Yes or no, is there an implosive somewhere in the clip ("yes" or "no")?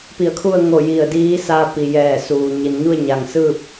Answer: no